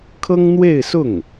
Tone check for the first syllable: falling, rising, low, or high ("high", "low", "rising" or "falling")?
high